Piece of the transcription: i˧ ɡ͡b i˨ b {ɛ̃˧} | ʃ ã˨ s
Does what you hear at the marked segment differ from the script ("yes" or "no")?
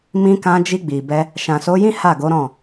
yes